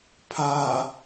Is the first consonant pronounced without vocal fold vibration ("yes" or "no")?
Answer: yes